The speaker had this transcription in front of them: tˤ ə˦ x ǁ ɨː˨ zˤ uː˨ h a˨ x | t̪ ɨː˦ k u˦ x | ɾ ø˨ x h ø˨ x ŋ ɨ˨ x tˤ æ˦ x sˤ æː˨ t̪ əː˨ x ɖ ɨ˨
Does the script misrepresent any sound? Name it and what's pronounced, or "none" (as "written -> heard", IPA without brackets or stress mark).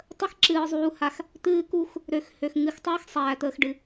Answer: none